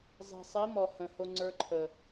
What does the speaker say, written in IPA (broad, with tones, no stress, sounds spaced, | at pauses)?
zˤ i̤˨ sˤ i˨˦ m ɔ˨ h ə̃˨ h o˧ ŋ͡ǀ ə˞˧ ǃʰ ə˨